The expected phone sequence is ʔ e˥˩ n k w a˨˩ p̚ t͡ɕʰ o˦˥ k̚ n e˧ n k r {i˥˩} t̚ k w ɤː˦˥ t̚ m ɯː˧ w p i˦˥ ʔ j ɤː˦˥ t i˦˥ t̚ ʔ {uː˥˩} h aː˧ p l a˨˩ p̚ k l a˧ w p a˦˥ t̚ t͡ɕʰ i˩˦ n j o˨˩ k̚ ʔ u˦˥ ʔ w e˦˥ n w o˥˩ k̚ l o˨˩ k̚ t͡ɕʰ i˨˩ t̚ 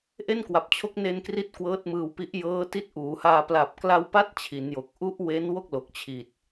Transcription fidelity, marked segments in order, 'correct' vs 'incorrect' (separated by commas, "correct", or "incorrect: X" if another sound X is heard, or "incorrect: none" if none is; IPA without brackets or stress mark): incorrect: i˦˥, incorrect: uː˩˦